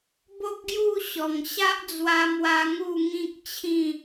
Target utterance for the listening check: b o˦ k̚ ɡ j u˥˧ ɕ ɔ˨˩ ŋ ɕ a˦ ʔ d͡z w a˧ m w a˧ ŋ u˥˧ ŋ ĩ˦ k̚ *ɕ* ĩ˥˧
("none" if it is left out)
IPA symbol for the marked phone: t͡ɕʰ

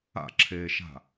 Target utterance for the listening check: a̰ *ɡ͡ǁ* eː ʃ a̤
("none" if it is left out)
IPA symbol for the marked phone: ǁʰ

